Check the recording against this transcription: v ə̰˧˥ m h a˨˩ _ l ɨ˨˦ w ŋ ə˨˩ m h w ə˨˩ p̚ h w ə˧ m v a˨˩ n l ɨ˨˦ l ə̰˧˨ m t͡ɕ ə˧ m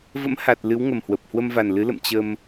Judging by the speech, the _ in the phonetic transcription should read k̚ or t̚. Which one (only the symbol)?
t̚